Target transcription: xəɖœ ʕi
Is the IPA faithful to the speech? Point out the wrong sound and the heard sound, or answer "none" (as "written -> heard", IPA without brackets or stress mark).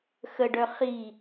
ʕ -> χ